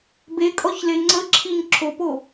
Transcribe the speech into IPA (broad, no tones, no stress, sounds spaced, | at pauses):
b e kʼ ɔ ç l e ŋ͡ǀ ə ǁʰ i ɲ ǁʰ o p o